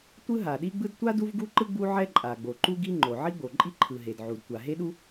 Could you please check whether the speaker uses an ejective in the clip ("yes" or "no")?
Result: yes